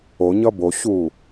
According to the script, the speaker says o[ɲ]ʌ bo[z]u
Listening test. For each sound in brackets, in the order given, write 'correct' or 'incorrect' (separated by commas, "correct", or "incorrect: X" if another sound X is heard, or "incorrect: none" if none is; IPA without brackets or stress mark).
correct, incorrect: ɕ